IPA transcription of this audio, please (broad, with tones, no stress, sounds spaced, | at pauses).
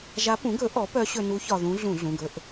ʒ a˧˥ p ũ˩˥ ɡ ɵ˩˥ ʔ ɔ˩˥ p œ˧˥ ɕ ɵ˧ n u˧˥ ç ɒ˧ ð ũ˧˥ ɮ ũ˧˩˧ ɮ ũ˩˧˩ ɡ ɵ˧ ʔ